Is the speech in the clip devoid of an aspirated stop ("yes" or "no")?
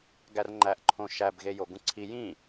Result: no